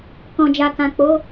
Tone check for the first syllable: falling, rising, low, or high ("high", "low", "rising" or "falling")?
low